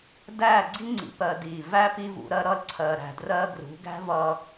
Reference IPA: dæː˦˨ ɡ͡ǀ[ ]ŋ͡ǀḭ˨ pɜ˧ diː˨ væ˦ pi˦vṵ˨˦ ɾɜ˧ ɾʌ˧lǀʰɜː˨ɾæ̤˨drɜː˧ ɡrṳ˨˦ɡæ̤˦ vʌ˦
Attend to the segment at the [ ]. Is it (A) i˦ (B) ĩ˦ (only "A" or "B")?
A